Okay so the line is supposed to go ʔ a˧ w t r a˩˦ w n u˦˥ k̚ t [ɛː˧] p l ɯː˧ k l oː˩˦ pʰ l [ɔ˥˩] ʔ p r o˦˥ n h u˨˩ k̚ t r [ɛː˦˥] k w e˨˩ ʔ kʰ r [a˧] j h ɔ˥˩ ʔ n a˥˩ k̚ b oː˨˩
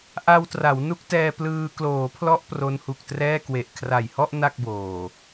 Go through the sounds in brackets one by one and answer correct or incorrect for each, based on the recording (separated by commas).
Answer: correct, incorrect, incorrect, incorrect